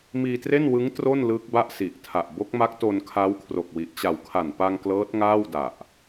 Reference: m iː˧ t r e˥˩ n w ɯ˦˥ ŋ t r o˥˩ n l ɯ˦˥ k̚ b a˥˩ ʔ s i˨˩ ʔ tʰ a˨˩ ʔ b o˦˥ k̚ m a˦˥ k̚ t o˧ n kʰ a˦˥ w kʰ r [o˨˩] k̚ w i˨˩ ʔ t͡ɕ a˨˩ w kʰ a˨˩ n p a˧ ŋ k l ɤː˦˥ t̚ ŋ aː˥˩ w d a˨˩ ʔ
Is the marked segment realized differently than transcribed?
no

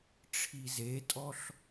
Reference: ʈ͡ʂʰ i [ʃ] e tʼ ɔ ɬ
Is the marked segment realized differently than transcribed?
yes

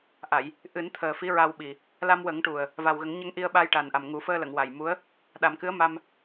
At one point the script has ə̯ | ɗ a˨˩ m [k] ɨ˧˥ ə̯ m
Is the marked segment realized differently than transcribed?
no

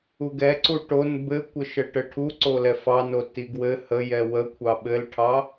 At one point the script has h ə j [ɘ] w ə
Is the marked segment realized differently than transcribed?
yes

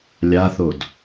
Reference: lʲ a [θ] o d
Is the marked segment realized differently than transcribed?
no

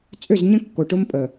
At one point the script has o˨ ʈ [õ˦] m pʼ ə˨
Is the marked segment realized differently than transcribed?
yes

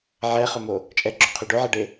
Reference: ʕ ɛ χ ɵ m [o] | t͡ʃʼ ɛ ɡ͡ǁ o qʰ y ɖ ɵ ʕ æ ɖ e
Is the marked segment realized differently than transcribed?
no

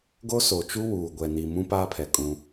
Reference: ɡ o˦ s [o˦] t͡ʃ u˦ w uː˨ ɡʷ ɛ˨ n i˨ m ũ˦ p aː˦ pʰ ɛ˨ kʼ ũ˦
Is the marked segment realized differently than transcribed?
yes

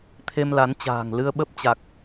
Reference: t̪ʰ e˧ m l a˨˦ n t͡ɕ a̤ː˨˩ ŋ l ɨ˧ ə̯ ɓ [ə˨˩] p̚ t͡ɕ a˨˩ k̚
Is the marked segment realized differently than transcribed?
yes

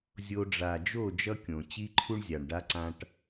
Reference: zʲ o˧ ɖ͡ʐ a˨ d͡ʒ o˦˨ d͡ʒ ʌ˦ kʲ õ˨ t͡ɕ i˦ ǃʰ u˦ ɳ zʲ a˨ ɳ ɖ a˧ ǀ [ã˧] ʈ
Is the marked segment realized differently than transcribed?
no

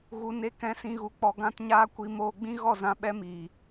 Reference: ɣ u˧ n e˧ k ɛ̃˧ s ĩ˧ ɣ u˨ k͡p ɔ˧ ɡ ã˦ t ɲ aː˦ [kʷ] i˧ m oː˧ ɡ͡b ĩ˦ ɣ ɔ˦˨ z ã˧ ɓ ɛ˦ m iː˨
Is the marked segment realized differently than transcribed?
no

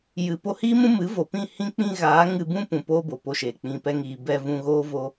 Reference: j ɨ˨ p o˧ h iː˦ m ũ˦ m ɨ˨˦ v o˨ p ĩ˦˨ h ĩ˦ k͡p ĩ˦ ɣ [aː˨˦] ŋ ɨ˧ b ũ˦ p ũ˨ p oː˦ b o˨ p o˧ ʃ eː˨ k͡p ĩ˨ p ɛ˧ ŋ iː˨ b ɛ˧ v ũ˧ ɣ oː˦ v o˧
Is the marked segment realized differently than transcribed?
no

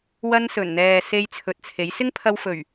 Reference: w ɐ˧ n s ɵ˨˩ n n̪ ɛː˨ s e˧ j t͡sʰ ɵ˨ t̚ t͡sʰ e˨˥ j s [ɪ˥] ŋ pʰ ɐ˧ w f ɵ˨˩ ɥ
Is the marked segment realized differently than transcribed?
no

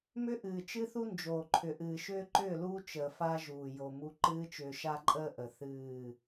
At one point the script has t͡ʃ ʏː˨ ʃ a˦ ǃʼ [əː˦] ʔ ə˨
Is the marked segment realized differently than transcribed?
no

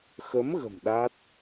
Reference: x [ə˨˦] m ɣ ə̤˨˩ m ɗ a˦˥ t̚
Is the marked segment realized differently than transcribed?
no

